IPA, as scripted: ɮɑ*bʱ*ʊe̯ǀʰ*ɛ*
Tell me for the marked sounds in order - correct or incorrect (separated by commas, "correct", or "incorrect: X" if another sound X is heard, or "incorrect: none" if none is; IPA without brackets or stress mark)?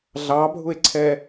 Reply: correct, correct